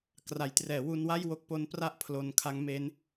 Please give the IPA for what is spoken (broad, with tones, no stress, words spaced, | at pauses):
kra˩˦jtrɛː˩˦wu˧nwa˥˩j wo˥˩k̚ po˦˥npra˥˩ʔ pʰlo˧nkʰa˦˥ŋme˦˥n